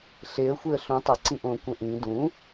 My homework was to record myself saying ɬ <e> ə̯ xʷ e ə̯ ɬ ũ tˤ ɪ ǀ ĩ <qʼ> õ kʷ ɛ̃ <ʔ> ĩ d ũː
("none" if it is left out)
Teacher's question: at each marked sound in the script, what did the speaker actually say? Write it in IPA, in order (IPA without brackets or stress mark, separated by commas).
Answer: e, ʔ, ʔ